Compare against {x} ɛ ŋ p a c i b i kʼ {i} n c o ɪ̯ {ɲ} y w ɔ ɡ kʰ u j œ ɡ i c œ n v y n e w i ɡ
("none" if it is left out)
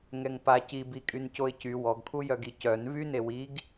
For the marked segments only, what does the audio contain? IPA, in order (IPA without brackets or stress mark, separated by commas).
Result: ŋ, y, c